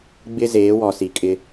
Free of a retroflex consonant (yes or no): yes